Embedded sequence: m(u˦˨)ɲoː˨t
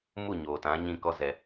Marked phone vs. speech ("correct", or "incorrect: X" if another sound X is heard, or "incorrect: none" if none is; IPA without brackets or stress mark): correct